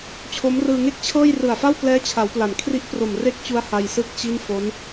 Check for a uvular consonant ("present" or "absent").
absent